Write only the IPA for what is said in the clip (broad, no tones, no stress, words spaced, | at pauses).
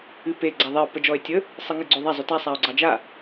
ɨpe ɡ͡ǀaðˤɛo̯ pəd͡ʒɔe̯tʲə | sˤɨŋɨɡ͡ǀoðˤa zˤyta sˤao̯ɡ͡ǀɑd͡ʒa